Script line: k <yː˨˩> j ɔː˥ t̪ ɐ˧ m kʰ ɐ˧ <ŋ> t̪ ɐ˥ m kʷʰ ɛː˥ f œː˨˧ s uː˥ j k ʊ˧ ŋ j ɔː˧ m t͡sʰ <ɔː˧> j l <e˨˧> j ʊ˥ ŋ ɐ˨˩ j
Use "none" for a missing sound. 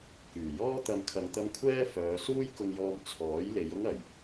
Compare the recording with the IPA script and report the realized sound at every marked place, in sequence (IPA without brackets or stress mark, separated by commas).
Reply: yː˨˩, ŋ, ɔː˨˥, e˨˧